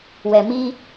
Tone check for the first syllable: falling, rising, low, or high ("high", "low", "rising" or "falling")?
low